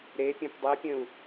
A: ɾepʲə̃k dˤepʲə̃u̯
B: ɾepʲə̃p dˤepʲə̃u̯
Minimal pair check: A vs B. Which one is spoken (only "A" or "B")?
B